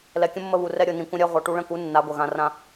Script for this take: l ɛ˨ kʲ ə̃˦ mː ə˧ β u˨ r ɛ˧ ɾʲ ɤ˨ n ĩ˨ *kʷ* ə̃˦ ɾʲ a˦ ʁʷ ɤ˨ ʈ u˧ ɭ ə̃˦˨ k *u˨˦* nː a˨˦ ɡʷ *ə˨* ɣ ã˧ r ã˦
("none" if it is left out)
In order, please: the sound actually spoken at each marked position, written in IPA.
kʷ, u˨˦, ə˨

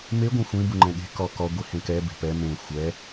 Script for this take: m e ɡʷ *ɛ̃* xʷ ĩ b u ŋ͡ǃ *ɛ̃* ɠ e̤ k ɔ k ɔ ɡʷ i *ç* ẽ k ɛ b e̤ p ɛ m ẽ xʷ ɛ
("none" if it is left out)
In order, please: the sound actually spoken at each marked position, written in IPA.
ẽ, ɛ̃, h

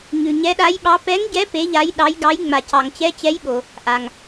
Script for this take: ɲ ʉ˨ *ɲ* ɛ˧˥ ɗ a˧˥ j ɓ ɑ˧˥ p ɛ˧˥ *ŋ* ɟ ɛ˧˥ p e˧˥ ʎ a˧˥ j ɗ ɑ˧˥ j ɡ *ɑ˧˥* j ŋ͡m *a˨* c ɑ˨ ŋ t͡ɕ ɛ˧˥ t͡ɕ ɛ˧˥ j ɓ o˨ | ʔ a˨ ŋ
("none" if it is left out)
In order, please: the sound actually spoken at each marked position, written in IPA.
ɲ, ŋ, ɑ˧˥, a˨

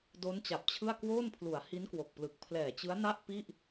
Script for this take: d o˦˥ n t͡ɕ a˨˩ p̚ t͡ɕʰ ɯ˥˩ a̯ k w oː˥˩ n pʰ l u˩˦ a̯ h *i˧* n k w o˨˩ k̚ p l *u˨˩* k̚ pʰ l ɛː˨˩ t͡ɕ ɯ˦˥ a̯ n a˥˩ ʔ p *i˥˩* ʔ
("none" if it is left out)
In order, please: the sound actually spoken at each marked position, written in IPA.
i˦˥, ɯ˨˩, i˥˩

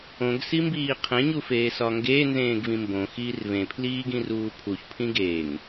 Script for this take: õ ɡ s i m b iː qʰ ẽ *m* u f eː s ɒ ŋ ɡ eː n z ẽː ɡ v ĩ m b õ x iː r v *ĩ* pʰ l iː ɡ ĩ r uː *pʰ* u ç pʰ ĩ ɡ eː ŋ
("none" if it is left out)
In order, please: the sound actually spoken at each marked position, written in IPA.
ɲ, ẽ, pʰ

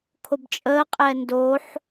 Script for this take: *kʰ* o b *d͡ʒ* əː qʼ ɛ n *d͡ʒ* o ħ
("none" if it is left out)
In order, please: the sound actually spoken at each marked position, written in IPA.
kʰ, t͡ʃʼ, d

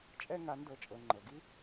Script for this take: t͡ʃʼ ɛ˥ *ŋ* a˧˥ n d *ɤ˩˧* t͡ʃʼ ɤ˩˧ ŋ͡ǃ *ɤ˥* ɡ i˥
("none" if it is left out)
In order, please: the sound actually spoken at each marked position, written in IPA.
ŋ, ɤ˧, ɤ˩

